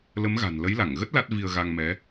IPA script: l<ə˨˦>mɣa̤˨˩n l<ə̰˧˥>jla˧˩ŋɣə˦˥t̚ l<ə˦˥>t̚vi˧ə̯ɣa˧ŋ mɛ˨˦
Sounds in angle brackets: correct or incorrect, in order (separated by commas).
correct, incorrect, incorrect